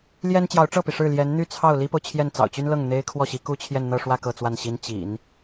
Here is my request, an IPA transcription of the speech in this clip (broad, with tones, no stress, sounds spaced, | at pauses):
l j ɛ˥ n t͡ɕ j ɑ˧˥ ʊ̯ ʈ͡ʂ ɤ˥˩ p i˩ ʂ ɻ̩˥˩ l j ɛ˧˥ n n̪ y˥˧ t͡sʰ ɑ˥˩ ʊ̯ l i˥ p o˨ ʊ̯ t͡ɕʰ j ɛ˥˩ n t͡s ɑ̰˨˩ ʊ̯ t͡ɕ y˥ n l ɤ˥˩ ŋ n̪ e˥ ɪ̯ kʰ w ɔ˥˩ ɕ i˧˥ k u˥ t͡ɕʰ j ɛ˥˧ n n̪ ɤ˥˧ ʂ w ä˥˧ k ɤ˥˧ t͡s w a˥˩ n ɕ i˥ n t͡ɕ ḭ˨˩˦ n